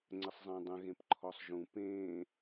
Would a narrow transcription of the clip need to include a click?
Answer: yes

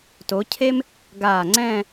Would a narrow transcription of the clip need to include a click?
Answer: yes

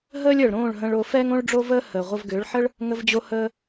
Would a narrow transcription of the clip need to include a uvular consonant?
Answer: yes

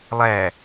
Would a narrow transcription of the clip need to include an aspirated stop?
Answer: no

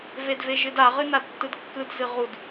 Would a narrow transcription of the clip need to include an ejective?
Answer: no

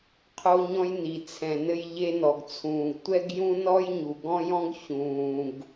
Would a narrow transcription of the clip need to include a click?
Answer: no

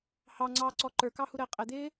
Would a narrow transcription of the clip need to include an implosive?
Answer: no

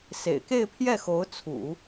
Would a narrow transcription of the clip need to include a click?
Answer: no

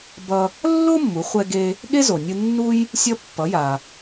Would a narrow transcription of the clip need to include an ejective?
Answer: no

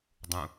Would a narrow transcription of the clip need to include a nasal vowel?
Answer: yes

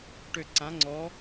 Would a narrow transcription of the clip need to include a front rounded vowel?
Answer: yes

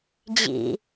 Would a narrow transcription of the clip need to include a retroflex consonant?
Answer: no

